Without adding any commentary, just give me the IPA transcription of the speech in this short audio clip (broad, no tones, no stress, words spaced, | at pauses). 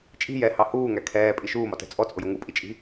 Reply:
t͡ʃʼi̤ jɛhɑ huːŋæ kʰɛːpʼi ʃuːmɒtɛ̤ t͡sʼɔt͡sʼʊjʊ ŋupʼit͡ʃʼi̤